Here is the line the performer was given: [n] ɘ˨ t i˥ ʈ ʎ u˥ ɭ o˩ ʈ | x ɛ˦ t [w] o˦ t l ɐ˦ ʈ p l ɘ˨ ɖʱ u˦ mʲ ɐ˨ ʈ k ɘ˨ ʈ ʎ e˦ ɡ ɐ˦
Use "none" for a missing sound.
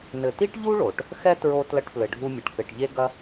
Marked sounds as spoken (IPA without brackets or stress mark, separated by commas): n, ɹ